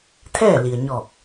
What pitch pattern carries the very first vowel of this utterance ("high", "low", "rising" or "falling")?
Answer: falling